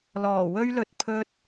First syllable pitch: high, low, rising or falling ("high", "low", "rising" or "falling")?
low